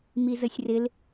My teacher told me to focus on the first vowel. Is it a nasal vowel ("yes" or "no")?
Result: no